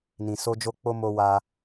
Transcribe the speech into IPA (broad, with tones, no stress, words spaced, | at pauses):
nĩ˨so˧ d͡ʒo˧k͡po˧ mo˧wa˧